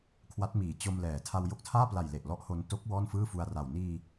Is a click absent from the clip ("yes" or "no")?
yes